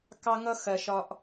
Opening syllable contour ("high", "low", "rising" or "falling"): high